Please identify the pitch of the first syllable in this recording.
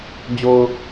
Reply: low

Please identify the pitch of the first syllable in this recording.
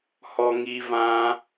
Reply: high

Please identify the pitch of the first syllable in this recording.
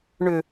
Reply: low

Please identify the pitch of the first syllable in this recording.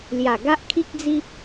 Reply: low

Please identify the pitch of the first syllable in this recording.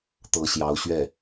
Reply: rising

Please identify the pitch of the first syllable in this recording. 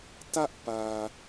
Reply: high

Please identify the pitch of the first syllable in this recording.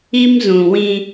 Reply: high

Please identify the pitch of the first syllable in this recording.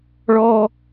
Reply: high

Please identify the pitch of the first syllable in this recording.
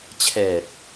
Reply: low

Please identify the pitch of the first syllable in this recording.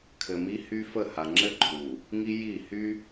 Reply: low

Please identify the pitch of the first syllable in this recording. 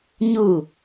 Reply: falling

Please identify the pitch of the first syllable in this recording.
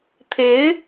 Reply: rising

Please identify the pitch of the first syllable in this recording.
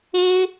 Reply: high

